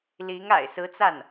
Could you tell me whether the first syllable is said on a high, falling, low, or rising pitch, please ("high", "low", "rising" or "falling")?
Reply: rising